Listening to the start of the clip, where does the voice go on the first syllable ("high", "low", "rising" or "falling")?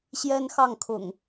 high